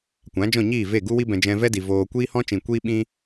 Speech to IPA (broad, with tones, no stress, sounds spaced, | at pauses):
kʷ ã˨˦ d͡ʒ ɔ̃˦˨ ɲ iː˦˨ v e˦˨ ɡ u˦ w i˦ b ɛ̃˧ d͡ʒ ɛ̃˧ v ɛ˦ d i˨ v oː˧ kʷ iː˦ h ɔ̃˦ t͡ʃ ĩ˨ kʷ iː˦ ɓ ĩ˦